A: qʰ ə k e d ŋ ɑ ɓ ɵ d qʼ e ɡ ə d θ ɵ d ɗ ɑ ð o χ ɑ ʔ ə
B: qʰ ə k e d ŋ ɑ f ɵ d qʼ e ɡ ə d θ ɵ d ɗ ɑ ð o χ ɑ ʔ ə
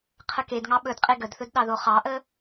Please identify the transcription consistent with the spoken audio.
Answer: A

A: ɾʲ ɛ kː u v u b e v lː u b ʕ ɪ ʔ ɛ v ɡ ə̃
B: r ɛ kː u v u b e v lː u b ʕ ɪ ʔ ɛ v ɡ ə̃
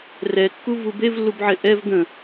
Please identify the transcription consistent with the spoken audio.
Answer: B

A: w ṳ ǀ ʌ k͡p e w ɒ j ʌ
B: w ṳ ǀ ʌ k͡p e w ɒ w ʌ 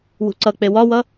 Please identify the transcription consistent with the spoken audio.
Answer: B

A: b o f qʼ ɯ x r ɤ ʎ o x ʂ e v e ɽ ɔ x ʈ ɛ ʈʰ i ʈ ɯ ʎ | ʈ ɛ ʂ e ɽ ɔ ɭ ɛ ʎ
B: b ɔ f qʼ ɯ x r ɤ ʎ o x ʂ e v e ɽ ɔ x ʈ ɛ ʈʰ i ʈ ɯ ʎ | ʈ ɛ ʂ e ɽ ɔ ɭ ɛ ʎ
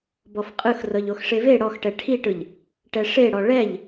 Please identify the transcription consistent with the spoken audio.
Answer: B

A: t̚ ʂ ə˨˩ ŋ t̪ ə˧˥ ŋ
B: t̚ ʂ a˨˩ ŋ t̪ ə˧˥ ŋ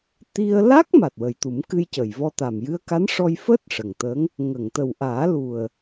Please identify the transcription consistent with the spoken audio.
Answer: A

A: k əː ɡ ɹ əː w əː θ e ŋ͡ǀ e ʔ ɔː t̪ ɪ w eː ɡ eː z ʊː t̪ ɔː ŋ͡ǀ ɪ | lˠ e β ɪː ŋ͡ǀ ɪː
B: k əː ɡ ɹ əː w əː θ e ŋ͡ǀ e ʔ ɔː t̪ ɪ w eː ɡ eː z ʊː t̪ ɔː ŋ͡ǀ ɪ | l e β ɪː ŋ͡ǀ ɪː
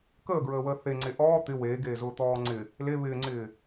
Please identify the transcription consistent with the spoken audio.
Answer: B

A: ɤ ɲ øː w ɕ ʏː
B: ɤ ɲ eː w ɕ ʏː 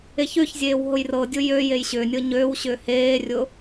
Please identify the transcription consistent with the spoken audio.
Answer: A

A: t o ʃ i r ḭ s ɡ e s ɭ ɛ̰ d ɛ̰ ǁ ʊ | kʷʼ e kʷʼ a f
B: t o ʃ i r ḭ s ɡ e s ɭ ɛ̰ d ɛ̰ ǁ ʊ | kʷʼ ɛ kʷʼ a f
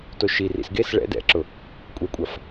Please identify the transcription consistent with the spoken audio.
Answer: B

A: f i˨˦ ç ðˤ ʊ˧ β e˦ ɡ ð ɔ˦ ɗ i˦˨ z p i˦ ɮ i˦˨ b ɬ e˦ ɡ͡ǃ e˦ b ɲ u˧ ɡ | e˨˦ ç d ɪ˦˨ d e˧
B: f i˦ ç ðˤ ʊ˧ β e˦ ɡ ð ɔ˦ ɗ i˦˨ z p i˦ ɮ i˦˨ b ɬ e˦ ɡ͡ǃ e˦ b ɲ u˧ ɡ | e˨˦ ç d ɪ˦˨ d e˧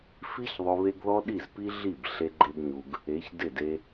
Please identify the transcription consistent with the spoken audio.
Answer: B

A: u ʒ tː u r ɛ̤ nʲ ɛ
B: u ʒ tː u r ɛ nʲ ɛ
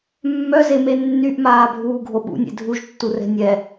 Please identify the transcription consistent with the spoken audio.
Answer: A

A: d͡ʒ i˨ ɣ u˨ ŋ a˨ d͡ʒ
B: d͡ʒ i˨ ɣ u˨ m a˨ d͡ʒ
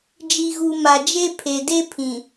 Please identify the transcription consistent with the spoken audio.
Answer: B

